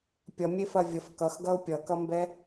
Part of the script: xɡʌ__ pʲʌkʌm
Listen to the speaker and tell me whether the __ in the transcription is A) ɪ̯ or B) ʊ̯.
B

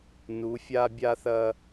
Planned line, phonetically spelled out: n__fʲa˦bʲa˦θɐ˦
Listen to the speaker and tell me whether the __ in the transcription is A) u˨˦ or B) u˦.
A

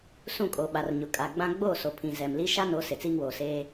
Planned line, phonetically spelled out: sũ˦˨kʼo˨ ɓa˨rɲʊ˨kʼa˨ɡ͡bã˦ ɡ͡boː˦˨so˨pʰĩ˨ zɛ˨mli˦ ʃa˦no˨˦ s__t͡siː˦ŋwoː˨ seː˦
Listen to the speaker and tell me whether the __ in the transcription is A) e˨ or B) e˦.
A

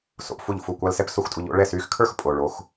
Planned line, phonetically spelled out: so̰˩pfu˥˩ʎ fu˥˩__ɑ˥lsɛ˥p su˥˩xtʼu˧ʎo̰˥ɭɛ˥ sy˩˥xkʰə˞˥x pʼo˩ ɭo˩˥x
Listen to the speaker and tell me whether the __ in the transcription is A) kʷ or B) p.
A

